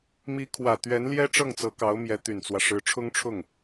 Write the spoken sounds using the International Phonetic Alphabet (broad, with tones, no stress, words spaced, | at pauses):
mi˧˥kʰwä˨˩ t̪ɥɛ˧˥nljɛ˥ ʈ͡ʂɤ˥˩ŋt͡sɤ˧˥kɑ˧˥ʊ̯mjɛ˧˥ t̪y˨˩nt͡swä˦ ʂɻ̩˧˥ʈ͡ʂʰʊ˥ŋʈ͡ʂʰʊ˥˩ŋ